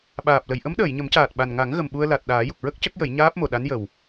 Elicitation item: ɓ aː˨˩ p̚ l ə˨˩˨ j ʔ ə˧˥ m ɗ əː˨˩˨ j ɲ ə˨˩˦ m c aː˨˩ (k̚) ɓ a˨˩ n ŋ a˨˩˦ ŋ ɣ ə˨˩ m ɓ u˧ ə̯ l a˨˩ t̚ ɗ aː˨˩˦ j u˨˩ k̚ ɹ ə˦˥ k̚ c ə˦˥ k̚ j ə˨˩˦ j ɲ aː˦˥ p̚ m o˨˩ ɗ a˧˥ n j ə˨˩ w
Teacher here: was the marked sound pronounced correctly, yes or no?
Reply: no